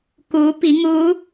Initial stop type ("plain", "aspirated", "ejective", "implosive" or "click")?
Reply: plain